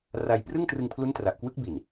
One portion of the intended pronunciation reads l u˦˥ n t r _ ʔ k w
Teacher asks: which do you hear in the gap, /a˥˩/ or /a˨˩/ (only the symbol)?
a˨˩